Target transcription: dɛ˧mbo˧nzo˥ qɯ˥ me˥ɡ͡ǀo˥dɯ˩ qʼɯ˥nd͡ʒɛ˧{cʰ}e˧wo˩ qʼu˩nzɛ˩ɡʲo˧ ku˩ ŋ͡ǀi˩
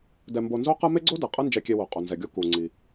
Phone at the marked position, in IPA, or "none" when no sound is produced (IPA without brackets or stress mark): kʲ